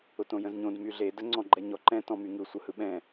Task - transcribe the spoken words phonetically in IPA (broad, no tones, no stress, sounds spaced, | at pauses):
ʊ t õ j ə̃ z ɲ õ d m y ɮ e d ə ŋ͡ǀ ɔ̃ ɡ͡ǃ ɛ ɲ ɔ ǃ ɛ̃ t ɔ̃ m y ŋ ɯ sʷ ɯ h ɯ ɓ ɛ̃